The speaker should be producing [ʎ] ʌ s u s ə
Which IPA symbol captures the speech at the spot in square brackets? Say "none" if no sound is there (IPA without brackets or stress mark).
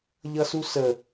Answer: ʎ